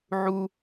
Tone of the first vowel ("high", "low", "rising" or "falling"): high